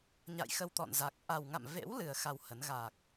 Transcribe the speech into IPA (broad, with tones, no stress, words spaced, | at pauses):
ɲa̰˧˨jxə˧wt̪ɔ̰˧˨nza˨˩k̚ ʔa˨˩wŋa̰˧˨mvḛ˧˥w lɨ˨˩ə̯ xa˧whə˨˦n ɣa˨˩k̚